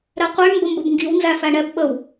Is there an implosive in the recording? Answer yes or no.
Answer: yes